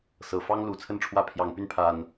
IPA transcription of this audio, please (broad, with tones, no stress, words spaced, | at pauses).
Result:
sɤ˨˩fɑ˦ŋ lu˨˩t͡sʰə˥˨nʈ͡ʂʰwä˥˨ pʰjɑ˨˩ŋpy˥˨n pʰa˨˩n